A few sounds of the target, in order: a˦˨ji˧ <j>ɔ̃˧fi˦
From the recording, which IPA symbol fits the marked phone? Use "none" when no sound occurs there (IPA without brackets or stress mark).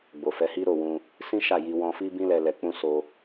w